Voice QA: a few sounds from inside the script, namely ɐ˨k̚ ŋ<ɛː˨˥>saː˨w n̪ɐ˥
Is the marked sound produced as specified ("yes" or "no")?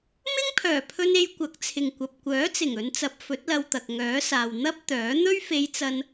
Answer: no